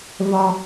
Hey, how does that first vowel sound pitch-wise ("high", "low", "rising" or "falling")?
high